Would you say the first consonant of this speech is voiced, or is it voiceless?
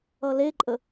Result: voiced